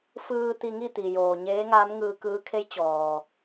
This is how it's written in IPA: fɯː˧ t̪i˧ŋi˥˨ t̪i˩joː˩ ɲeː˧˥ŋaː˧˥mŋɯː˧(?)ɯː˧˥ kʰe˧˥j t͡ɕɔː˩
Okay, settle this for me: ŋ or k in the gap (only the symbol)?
k